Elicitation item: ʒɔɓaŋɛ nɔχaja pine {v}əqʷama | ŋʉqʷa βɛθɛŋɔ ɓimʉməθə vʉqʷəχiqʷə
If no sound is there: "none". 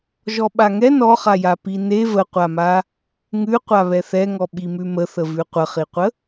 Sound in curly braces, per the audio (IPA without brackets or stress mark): v